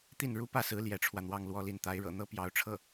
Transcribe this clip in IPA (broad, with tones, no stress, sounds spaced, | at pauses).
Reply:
t̪ i˥˩ n ɻ u˥ p ä˥˩ s ɹ̩˧˥ l j ɛ˧˥ ʈ͡ʂʰ w ä˧ n̪ w ɑ˥˧ ŋ l w ɔ˥˧ l i˥˩ n t̪ a˧˥ ɪ̯ ɻ ɤ̰˨˩ n̪ ɤ˥ p j ɑ˧˥ ʊ̯ ʈ͡ʂʰ ɤ˥˩